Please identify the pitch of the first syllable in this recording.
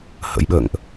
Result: rising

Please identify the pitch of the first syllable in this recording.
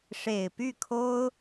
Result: low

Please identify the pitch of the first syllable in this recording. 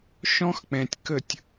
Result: high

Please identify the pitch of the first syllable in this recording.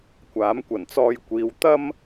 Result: rising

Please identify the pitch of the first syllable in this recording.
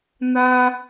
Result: high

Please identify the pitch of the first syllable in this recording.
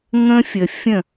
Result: high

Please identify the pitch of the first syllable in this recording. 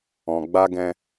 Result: low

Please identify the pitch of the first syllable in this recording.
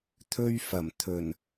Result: high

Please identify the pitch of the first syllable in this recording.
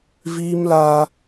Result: high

